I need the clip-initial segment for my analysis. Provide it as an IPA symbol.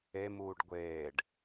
e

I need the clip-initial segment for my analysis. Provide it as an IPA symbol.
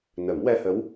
n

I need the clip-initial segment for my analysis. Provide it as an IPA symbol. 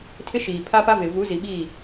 tʰ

